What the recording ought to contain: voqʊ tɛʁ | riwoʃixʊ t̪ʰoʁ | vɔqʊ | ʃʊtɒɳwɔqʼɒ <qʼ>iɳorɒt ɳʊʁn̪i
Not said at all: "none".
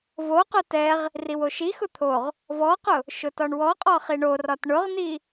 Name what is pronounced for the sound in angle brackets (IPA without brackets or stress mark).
χ